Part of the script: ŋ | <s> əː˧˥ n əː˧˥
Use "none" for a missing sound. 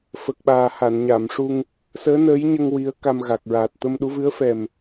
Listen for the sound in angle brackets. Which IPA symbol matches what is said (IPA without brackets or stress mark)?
s